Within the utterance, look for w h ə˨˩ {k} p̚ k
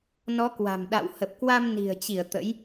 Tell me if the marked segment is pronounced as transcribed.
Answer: no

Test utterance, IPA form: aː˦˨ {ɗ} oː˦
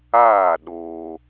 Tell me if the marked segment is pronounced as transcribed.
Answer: yes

